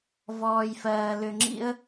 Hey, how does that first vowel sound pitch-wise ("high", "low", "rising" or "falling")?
low